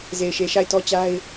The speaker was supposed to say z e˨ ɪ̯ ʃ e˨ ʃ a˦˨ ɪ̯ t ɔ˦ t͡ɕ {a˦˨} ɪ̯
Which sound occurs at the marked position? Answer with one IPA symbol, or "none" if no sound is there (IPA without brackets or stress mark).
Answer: a˦